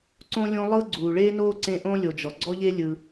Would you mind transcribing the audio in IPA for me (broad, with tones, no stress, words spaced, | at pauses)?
ǀõ˦lʲõ˦ lˠɤ˥ɡ͡ǀuː˩ɭeː˥noː˥ ǀẽ˦ʔõ˥ lʲo˨d͡ʒɔ˩ ɡ͡ǀɔ˥ʎe˥ lʲɯ˨